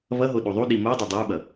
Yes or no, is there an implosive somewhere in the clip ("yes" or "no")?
yes